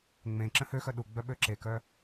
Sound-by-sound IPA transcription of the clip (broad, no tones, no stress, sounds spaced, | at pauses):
ŋ͡m ẽ ǁ ə̃ h ø x œ ɗ u ɡ͡b œ ɓ ø ǁ e k œ